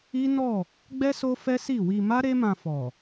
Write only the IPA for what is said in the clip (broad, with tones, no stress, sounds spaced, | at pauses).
i˦ n ɔ˦˨ | ɡ͡b ɛ˦ s o˦ f ɛ˦ s i˦˨ w i˧ m a˦ ɾ e˦ m ã˧ f ɔ˨